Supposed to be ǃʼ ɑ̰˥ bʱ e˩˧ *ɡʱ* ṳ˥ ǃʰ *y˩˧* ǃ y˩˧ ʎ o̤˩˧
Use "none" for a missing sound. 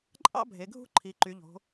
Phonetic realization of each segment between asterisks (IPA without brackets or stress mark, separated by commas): ɡʱ, i˩˧